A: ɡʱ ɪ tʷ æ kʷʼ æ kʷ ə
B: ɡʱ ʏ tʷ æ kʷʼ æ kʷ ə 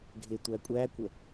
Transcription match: A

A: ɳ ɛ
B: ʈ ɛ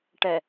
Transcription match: B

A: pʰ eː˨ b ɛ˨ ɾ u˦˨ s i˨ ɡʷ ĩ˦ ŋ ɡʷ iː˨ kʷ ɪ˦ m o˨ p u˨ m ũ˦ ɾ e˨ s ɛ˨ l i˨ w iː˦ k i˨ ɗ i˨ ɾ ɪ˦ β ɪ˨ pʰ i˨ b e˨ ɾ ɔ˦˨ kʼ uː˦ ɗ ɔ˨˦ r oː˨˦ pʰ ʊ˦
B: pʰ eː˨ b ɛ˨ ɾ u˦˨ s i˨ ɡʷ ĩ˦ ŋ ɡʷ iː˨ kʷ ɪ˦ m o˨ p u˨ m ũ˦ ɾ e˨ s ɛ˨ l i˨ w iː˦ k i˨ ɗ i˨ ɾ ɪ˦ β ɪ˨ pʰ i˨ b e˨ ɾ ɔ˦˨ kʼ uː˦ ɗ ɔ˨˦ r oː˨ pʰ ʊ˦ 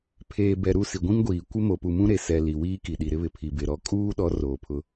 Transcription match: B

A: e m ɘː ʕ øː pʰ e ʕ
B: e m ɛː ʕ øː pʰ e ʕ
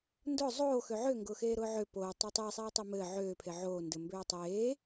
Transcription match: A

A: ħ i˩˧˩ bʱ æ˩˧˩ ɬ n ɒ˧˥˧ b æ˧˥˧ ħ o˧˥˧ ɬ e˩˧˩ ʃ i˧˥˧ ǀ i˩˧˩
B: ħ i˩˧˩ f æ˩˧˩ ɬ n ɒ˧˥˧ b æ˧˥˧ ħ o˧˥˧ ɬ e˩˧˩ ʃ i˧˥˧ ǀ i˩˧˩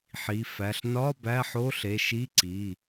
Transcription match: B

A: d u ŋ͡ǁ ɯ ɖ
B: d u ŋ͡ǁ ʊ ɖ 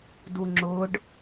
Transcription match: B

